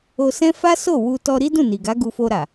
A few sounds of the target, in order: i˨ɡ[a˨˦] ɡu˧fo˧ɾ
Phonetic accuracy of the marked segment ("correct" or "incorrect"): correct